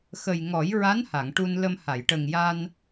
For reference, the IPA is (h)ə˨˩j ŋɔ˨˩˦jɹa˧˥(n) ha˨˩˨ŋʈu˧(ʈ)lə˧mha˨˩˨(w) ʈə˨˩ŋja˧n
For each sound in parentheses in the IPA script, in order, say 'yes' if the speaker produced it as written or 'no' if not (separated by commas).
no, yes, no, no